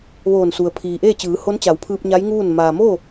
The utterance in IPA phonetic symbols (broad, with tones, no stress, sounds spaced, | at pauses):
ʋ oː˧˩ n s u˩ ə̯ pʰ iː˩ ʔ eː˥˨ t͡ɕ ɯː˩˧ h o˧˥ n t͡ɕ a˩˧ w pʰ ɯː˧ p̚ ɲ a˧˥ j ŋ uː˥˨ n m aː˩ m oː˥˨